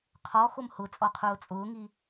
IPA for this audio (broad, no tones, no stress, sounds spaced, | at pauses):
qʰ ɔ x o m h ʊ t͡sʼ ɔ qʰ ʊː t͡sʼ ʊː ŋ i